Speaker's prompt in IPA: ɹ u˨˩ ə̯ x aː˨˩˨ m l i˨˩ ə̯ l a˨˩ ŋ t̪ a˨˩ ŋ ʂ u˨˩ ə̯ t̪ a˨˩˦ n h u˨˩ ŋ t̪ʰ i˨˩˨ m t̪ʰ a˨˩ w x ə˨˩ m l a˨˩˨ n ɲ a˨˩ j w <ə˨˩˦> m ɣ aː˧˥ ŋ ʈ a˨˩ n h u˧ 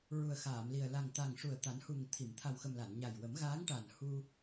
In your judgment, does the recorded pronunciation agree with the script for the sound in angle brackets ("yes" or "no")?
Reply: yes